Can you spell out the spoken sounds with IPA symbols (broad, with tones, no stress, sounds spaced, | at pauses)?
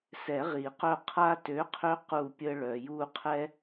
s ɛ˨˩˦ ʁ i˨˩˦ q œ˦˨ qʰ a˦ t ø˨˥ qʰ ø˦ q u˦˨ pʲ ə˦ ɭ œ˨ j u˦˨ qʰ ɛ˦